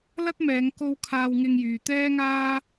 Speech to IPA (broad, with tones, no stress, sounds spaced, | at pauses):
l ɐ˥ t̚ m ɛː˨˧ ŋ k o˧ w kʰ aː˧ w ŋ ɪ˧ ŋ j yː˨ t̪ ɛː˥ ŋ aː˥